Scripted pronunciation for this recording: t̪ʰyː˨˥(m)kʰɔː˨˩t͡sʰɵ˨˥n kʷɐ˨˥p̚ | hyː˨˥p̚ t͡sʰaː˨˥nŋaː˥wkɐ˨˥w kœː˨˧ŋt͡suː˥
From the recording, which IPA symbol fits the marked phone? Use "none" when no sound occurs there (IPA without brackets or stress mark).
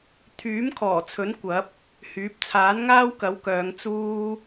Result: m